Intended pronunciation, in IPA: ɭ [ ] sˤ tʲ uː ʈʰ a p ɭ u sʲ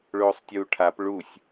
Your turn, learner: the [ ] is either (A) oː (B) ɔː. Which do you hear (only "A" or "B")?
A